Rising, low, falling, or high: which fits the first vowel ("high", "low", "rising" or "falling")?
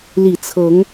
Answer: low